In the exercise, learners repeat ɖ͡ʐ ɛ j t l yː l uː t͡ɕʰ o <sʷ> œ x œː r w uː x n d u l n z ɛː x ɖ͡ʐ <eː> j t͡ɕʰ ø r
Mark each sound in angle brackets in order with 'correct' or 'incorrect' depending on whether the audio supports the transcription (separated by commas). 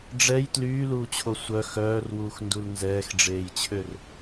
correct, correct